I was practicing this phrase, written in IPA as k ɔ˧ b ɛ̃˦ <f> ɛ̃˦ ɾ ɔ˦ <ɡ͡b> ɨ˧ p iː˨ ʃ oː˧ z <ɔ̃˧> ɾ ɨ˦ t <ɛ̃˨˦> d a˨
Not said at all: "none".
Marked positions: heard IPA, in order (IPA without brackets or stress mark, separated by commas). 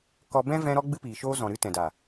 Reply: v, ɡ͡b, ɔ̃˨, ɛ̃˨